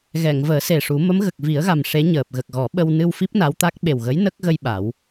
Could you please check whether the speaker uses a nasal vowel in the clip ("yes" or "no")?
no